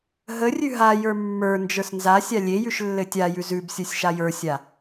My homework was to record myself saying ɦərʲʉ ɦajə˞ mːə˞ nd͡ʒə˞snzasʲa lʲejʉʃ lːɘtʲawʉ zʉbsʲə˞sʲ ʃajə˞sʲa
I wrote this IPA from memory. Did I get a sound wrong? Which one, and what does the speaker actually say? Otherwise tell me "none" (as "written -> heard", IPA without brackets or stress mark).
w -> j